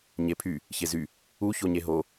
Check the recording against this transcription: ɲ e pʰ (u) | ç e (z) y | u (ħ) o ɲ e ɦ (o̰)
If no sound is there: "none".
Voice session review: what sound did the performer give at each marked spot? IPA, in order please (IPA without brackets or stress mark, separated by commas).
y, z, ç, o